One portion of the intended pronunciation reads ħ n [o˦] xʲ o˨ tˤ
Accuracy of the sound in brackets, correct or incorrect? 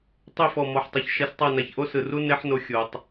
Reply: incorrect